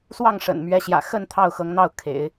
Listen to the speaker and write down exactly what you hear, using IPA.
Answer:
s w ɑ˥˩ ŋ ʂ ə̰˨˩ n m ɥ ɛ˧˥ ɕ j ä̰˨˩ x ə˥˧ n t̪ʰ ɑ˥˩ ʊ̯ x ɤ˧˥ ŋ n̪ ɑ˥˩ ʊ̯ kʰ ḛ˨˩˦ ɪ̯

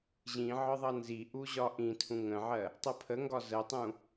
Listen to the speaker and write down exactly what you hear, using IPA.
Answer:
ʑ ĩ ʕ ɒ ðˤ ʌ n z i ʔ u ʑ ɒ ʔ ĩ tʰ ũ ŋ ə̃ ʕ ɜ | tˤ ɤ pʰ ə ŋ ɡ ɒ z ə tˤ ũ

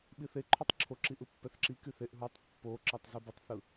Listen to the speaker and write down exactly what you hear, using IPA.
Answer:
ɓ i θ e ǃʰ y tˤ ǁʰ o ǁ i ʔ ɯ pː ɛ θ ǁ i k y θ e ʔ ɦ u tˤ pː o ǁ ɑ tˤ z ʉ b ɯ tˤ θ ɯ

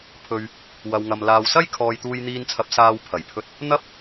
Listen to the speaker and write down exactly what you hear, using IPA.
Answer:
pʰ ɵ˨ ɥ | w ɐ˨ w ŋ ɐ˨ m l aː˨ w s ɐ˥ j kʰ ɔː˨ j t̪ uː˨ j n̪ iː˨ n t͡sʰ ɐ˨ p̚ s aː˧ w pʰ ɐ˨˩ j pʰ ɵ˧ t̚ | n̪ ɐ˧ p̚

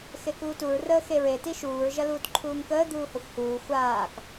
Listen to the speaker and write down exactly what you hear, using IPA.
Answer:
x e k uː t u ɹ r əː x e ɹ e t i ʃ uː ɹ ʒ ɐ l uː t ǃʰ uː ŋ k əː d̪ uː h ɐ xʷ h uː xʷ aː k

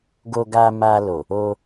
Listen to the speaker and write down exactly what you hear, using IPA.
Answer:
ɡ o˧ ɡ a˧ m a˧ l o˨ | o˧

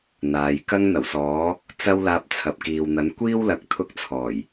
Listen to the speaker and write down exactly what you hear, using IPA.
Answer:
n̪ aː˨˧ j k ɐ˥ ŋ n̪ ɐ˨˩ w s ɔː˨˥ | t͡s ɐ˥ w l aː˧ p̚ t͡sʰ ɐ˨ p̚ k iː˨ w n̪ ɐ˨˥ n kʷ iː˥ w l ɐ˨ k̚ t̪ʰ ʊ˥ k̚ t͡sʰ ɔː˨˩ j

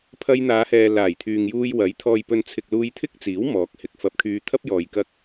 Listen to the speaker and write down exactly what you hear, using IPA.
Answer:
pʰ ɐ˧ j n̪ aː˨˧ h ɛː˨ l aː˨˩ j t̪ʰ yː˨ ŋ j uː˧ j w ɐ˨˥ j t̪ʰ ɔː˨ j p ɵ˨ n t͡sʰ ɪ˨ k̚ l uː˧ j t̪ʰ ɪ˥ k̚ t͡s iː˨˥ w m ɔː˨˥ k̚ h ɪ˨ k̚ f ɐ˧ p̚ kʰ yː˧ t̪ʰ ɐ˥ p̚ j ɔː˨ j k ɐ˧ k̚

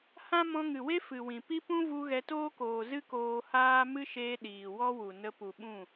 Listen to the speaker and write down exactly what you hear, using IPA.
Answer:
h ã˦ m ɔ̃˧ ŋ ɨ˨ w e˦ f ɨ˨ w ĩ˨ p i˦ p ũ˦ v u˧ ɣ ɛ˧ t oː˦ k oː˨ z ɨ˦ k oː˧ h aː˦ m ɨ˦ ʃ eː˧ ɗ iː˨ w ɔ˦ w u˨ n ə˧ p u˨ ɓ ũ˦˨

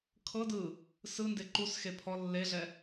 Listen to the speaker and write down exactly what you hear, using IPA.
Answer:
kʰ ɤ d ɯ | s ɯ n d e ǃ u s x e pʰ ɔ lː e ɮ ɛ

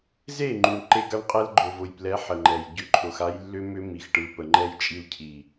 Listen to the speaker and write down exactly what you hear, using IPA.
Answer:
z e˦˨ ŋ͡ǃ u˨ ɳ ǃ e˦ ɡ a˦ ɳ qʼ ɛ˦ l ɡ͡ǃ ʊ˨ v ʊ˨ j p l ɛ˨˦ ħ ə˨ ŋ͡ǃ ɛ˨ j ɟ ʏ˦ ǃʰ ʊ˧ x a˦ j lː ʏ˦ m ʏ˦ m i˨ x ʈ ɯ˨ p ə˨ ŋ͡ǃ ɛ˧ j t͡ʃʼ i˧ l cʰ i˨

